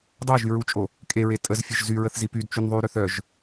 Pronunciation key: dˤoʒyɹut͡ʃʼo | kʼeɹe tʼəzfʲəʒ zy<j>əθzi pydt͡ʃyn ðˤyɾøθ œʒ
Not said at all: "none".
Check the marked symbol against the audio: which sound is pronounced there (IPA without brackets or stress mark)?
ɹ